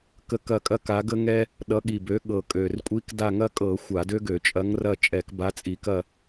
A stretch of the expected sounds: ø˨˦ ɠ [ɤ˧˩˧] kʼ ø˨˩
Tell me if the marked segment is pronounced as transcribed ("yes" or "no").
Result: no